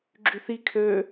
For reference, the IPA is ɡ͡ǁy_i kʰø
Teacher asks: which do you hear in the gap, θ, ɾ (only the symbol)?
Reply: θ